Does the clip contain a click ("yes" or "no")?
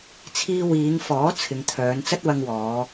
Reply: no